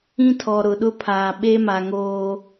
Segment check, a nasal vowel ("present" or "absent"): present